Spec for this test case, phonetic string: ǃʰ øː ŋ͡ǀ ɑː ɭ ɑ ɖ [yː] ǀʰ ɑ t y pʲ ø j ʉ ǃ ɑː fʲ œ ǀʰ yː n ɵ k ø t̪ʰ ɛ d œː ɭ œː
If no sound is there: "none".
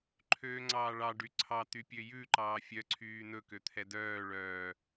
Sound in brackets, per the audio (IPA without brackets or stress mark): y